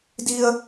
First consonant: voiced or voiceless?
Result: voiced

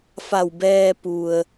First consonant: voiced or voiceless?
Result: voiceless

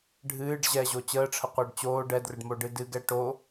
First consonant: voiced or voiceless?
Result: voiced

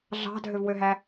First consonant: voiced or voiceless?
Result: voiced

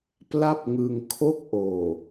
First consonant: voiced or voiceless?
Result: voiceless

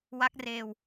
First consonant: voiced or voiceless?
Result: voiced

